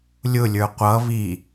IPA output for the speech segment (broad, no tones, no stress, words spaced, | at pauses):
lʲʊlʲə˞ qʷʌ βi